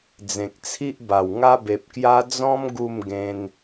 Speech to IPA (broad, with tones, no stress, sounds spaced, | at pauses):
d͡z ẽ˨ k̚ t͡sʰ i˦ ʔ b a˨˩ w ŋ a˦ b e˨ p̚ k j a˦ d͡z ɔ̃˦ m ɡ u˥˧ m ɡ ẽ˧ n